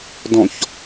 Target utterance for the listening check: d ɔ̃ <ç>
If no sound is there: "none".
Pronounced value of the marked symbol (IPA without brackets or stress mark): ç